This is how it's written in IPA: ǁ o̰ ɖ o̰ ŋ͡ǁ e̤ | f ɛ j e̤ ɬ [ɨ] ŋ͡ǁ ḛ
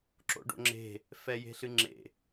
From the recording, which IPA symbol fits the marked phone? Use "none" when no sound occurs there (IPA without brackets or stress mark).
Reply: ɨ